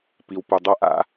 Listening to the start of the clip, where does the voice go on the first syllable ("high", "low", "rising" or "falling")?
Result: low